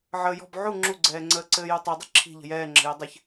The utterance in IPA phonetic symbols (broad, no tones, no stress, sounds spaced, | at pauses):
ʕ əː j ɔ̤ b ʕ u ŋ͡ǁ u ɡ͡ǀ ɛː ŋ͡ǀ əː ǀ ɘː j u tˤ i dˤ ɘ ǁʰ i̤ ʎ ə̤ j ɛː ŋ͡ǁ ə̤ j ɘ dˤ ɘ ç